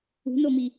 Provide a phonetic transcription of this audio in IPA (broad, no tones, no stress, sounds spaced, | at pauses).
ṳ n o m i